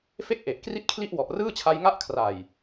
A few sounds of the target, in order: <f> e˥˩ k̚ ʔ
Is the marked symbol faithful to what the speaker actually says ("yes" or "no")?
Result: yes